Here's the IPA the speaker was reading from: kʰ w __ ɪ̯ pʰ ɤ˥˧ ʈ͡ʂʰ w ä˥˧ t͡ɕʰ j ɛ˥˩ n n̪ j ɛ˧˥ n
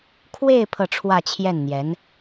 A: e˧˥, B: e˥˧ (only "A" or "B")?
B